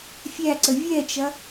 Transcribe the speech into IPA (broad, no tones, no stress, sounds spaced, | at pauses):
fʲ æ ǀ ə vʲ ɛ t͡ʃ ɐ